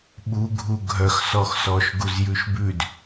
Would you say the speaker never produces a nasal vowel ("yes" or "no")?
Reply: yes